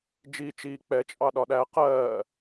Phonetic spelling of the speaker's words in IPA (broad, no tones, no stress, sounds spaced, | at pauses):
d͡ʒ iː t͡ʃ iː k͡p ɛ t͡ʃʼ ɑ ɗ ɒ ɗ æ q ɜː